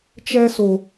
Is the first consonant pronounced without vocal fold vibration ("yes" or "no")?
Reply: yes